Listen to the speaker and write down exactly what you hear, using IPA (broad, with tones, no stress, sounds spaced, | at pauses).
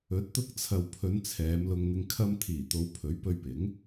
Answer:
ɵ˨˥ t̚ t̪ ʊ˧ k̚ t͡sʰ ɐ˨ w pʰ ɵ˨˧ n t͡sʰ ɛː˨˧ m l ʊ˧ ŋ n̪ ɪ˧ ŋ kʰ ɐ˧ m t̪ʰ iː˨˩ t̪ o˨˧ w pʰ ɵ˨˥ ɥ p ɵ˧ ɥ p ɪ˨˥ ŋ